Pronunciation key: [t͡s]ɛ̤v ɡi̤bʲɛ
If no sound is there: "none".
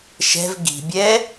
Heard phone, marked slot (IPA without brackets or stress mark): ʃ